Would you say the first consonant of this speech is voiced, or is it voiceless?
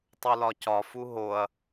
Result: voiceless